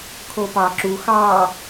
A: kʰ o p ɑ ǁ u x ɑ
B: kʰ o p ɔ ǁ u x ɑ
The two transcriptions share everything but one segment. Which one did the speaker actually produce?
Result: A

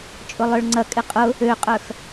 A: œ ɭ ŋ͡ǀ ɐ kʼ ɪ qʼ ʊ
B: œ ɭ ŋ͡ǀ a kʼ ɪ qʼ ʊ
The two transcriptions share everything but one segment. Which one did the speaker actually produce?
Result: A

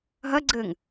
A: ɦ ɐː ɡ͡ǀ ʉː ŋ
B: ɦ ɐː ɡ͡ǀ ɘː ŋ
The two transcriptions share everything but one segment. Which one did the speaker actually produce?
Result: B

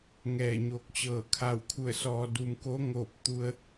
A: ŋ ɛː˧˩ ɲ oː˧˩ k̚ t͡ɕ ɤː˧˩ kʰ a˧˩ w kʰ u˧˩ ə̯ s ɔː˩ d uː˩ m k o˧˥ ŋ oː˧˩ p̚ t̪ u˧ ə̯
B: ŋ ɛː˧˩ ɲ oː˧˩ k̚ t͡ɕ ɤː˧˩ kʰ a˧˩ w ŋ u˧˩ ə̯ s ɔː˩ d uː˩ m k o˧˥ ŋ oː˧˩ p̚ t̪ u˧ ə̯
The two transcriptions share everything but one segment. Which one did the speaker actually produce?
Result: A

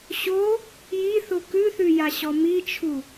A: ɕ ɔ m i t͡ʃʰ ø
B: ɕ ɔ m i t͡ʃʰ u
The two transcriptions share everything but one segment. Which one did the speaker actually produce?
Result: B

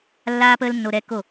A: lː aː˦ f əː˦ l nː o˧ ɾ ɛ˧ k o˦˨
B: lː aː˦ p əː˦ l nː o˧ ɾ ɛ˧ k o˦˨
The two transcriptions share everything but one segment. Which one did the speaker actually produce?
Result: B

